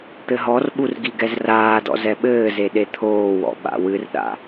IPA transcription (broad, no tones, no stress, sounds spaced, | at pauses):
t̪ ɘ ɦ ɔ r ɓ u r ɡ i ɡ ɛ z r aː d ɔ̰ z ɛ ɓ ɘː z e ɗ e t̪ʰ oː w ɔ̰ ɓ a̰ w ɨ r ɗ a̰